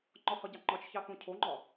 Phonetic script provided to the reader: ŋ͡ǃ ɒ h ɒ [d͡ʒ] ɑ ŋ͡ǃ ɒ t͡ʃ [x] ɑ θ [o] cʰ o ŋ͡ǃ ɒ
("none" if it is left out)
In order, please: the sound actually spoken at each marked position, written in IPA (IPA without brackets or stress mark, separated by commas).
ɟ, ç, õ